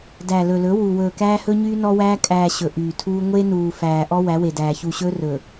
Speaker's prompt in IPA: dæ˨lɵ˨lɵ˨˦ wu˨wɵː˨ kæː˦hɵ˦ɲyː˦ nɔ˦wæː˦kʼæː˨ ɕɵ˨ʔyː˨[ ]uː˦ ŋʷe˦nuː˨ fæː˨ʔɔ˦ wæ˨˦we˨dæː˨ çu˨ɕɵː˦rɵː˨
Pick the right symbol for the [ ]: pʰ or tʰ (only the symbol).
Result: tʰ